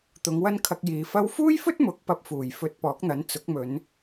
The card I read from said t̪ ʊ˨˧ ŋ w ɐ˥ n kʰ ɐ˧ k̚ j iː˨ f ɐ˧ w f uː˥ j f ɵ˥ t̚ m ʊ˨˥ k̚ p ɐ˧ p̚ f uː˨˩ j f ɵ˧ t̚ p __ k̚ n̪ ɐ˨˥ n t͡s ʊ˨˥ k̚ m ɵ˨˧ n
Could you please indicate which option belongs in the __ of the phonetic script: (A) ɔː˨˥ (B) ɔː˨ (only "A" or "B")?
A